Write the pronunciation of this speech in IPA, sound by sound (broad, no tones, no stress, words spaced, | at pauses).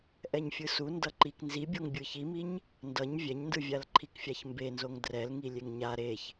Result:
ʔɛɲfʲɯsu ndʌǃik nzibʲoŋ bʲɯçimiɲ | ndʌɲ vʲɛɲndɯvʲal ǃʰikfʲaçmbenzoŋ drɛlŋi lʲeŋɲa ɾeç